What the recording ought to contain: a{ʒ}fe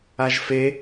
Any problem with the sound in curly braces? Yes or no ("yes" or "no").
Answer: no